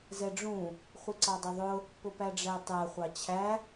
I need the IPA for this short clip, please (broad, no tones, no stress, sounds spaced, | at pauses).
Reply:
z ɛ ɖ͡ʐ ũ | χʷ i ǀ ɑ dˤ ʊ ðˤ ʊ | p ʊ p æ ɖ͡ʐ æ tˤ æ χʷ ɑ t͡ɕʰ æ